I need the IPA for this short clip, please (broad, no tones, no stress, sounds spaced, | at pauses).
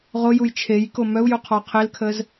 ʁ o j u j t͡ʃʰ e j k o m œ u̯ j u qʰ ɔ qʰ e l kʰ ə z